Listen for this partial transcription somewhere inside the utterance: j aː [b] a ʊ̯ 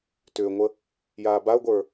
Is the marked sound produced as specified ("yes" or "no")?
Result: yes